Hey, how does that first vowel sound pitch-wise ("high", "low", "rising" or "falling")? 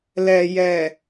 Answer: low